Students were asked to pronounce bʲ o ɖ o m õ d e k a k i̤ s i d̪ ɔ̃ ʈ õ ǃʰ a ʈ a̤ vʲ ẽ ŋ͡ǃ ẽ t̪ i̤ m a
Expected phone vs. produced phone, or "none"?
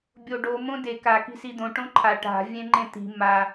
ɔ̃ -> õ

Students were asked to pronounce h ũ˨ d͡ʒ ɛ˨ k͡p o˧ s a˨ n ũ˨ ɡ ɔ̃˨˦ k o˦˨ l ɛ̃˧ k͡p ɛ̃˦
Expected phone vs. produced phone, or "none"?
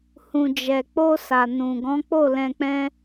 k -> k͡p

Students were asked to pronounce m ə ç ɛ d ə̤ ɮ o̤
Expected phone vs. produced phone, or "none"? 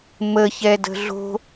none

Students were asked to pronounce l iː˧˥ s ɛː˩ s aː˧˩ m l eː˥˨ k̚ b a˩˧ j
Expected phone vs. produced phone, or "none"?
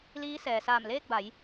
none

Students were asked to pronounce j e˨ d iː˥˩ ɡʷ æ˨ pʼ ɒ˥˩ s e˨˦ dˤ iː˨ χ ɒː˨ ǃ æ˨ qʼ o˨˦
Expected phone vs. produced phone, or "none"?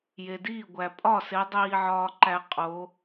χ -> ʕ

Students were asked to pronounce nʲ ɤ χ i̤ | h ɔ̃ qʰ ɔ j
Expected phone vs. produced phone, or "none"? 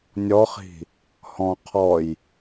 ɤ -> ɔ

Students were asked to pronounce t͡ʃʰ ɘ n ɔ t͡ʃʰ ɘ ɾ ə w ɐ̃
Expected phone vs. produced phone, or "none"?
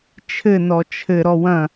ə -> ɔ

